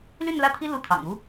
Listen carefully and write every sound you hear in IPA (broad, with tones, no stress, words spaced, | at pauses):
ly˥˧nlä˥˩t̪ʰi˥ lu˥t̪ʰɑ̰˨˩ŋ u˥